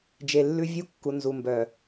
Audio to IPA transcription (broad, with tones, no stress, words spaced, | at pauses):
d͡ʒe˨lːʉ˦ vʲu˦kːu˨ nzu˨mbœ˨